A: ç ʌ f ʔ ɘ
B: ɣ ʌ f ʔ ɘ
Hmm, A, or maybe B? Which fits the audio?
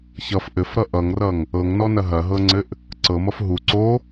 A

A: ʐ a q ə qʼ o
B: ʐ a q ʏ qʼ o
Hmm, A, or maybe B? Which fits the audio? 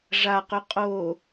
B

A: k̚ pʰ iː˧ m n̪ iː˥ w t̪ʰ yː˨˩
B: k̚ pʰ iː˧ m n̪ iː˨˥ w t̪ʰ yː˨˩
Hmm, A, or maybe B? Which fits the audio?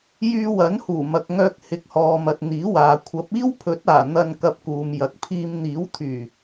B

